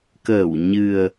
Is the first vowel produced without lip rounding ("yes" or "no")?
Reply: yes